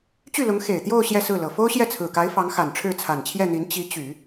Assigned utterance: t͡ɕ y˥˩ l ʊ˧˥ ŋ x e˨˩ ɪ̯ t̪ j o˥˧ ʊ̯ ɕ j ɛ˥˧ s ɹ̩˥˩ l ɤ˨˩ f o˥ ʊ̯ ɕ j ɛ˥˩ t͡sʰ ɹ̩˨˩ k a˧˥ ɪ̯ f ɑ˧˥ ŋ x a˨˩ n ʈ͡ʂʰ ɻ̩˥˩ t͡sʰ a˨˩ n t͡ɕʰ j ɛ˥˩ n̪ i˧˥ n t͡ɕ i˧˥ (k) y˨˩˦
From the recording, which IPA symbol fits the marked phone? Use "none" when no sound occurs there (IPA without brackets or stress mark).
t͡ɕ